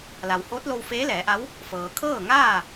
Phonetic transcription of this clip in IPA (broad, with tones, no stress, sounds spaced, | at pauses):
l a˩ w h oː˧˥ t̚ l o˧ w f eː˧˥ l ɛː˩˧ ʔ a˧˥ w | f ɤː˩ kʰ ɤː˥˨ ŋ aː˥˨